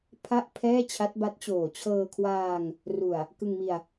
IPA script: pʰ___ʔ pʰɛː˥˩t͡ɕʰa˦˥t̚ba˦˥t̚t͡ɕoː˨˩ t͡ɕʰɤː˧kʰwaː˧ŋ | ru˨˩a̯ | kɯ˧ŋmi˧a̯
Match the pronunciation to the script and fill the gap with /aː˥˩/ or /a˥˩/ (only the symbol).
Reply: a˥˩